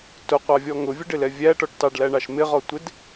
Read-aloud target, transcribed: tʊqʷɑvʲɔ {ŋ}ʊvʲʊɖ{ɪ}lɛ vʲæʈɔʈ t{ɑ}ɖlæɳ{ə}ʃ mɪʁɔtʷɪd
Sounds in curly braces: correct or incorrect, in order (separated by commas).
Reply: correct, correct, correct, incorrect